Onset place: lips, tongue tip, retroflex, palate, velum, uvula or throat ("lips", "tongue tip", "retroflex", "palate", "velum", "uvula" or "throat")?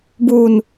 lips